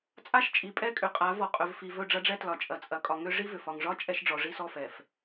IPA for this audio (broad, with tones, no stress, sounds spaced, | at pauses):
t͡sʼ a˦ ʃ t͡ʃʼ i˨ pʼ ɛ˦ kʼ ʏ˨ qʼ a˨˦ v ɔ˨ qʼ ɵ˨ v f i˨ v ɵ˦˨ ɖ͡ʐ ɐ˦ ɖ͡ʐ ɛ˦ t l ɒ˨ t͡ʃʼ ɐ˨ t͡sʼ ɐ˨ kʼ ɒ˨ ŋ ʏ˦ ʐ i˦ v ʏ˨ f ɒ˨ ŋ ʐ ɒ˦ t͡ʃʼ ɛ˦ ʃ ɖ͡ʐ ɔ˨ ʐ i˦ s ɔ˦ f ɛ˨ f